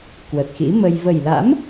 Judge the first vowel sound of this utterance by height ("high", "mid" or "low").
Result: mid